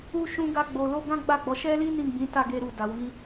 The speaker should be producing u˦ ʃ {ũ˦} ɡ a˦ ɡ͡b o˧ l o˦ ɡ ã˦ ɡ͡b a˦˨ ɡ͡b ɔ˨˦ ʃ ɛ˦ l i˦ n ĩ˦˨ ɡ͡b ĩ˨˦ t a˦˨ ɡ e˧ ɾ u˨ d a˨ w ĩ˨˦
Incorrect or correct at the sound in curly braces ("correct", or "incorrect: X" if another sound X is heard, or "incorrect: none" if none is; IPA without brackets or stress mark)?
correct